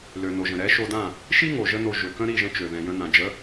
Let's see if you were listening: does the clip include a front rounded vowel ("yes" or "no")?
yes